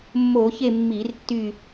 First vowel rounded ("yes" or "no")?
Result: yes